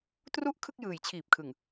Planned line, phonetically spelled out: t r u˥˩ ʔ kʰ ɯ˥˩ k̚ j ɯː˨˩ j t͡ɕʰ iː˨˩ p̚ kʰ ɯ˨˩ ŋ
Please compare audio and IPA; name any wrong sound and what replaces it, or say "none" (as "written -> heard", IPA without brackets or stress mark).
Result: none